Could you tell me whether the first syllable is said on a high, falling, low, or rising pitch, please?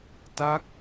falling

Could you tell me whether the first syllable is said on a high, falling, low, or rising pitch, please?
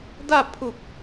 falling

